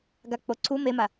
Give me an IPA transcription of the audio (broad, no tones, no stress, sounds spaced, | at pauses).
ɡ a k͡p o ǀʰ u m e m a